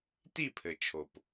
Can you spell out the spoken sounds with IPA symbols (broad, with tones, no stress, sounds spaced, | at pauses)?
t i˦˨ pʰ ɘ˨ t͡ʃʰ o˨ p